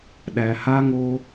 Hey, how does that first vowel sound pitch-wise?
low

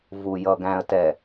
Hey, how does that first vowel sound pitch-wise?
low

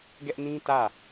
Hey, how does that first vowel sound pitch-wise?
high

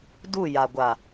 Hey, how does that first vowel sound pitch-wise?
falling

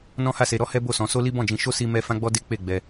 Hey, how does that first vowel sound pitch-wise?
high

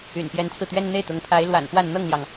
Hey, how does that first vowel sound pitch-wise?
low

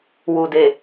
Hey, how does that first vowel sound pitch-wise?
low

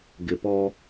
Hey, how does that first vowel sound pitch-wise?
low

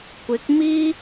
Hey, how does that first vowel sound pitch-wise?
rising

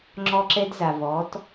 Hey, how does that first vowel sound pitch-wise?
high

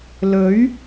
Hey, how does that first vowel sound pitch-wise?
rising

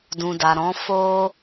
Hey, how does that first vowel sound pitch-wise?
low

